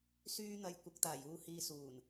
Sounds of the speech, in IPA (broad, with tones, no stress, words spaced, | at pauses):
syː˥n̪ɐ˧j kʷɐ˨˥k̚t̪aː˨˩juː˧ hiː˧suː˨˩n